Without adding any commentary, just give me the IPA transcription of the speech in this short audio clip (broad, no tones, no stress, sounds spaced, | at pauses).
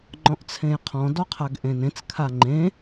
ŋ͡ǃ ɔ̃ ʔ t͡sʰ ẽ j qʰ ɔ̃ d ɔ qʰ a ɡ ʔ ẽ n ẽ t͡s kʰ a ŋ͡ǃ ẽ